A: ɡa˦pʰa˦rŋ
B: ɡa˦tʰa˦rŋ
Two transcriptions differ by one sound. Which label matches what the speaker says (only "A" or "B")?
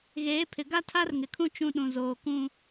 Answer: B